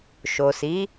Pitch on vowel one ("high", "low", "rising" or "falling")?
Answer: low